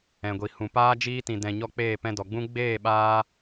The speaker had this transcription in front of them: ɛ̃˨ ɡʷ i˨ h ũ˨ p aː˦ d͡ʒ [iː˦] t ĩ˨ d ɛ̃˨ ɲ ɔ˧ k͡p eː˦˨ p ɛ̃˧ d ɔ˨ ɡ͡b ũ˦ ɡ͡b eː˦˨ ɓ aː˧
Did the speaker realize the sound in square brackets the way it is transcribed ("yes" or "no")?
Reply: yes